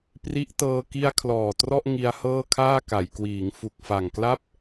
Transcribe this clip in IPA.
pri˦˥ʔtɤː˧ ki˧a̯ kʰlɔː˨˩trɔ˥˩ʔ ŋi˧a̯hɤː˥˩kʰaː˥˩ ka˩˦jkwiː˩˦ŋ fu˨˩k̚fa˨˩ŋkla˥˩p̚

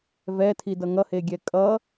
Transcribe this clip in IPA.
vɛtʰidʌ ŋʌheɡʲɛ kʼʌ

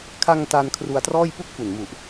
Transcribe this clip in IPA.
kʰa˧ŋ ta˧nkʰru˧a̯trɔː˥˩j pu˥˩k̚fu˨˩nmu˨˩ʔ

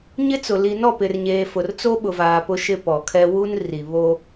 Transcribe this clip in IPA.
ɲɪ˦t͡sʊ˨ li˨nɔ˦˨pɪ˨rɲeː˨ fʊ˨rt͡so˦ɓʊ˨vaː˨ pʊ˦ʃɪ˦pɔ˨kʰɛ˦ wu˦n ri˨βo˦

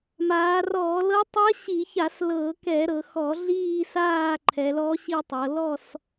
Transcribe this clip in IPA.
maː˩˧rɔː˧˩˧lɤ˧˥ tˤi˧˥ɐ̯ɕi˧˩˧ça˧˩˧s lɤ˧˩˧kɛ˧˩˧ ɾɤ˩˧xɔ˧˩˧ɮiː˦˨saː˦˨ ǃʰɛ˩˧lɔ˧˥ɕi˦˨tˤɤ˩˧ lɔ˦˨s

